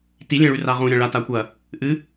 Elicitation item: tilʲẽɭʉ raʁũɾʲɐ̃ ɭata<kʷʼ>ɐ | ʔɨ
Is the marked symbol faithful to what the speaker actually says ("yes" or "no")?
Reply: no